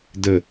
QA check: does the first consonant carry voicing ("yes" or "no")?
yes